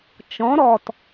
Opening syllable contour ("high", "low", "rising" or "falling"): rising